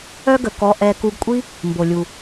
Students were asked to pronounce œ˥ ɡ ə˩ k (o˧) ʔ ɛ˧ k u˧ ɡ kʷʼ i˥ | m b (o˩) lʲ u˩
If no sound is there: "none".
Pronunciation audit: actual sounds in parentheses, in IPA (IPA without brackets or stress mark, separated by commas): ɔ˧, o˩